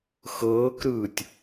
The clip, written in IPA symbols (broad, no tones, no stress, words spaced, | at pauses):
xɤːkɾɯːtʲ